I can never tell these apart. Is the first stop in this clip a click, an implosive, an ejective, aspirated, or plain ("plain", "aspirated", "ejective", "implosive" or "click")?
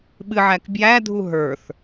implosive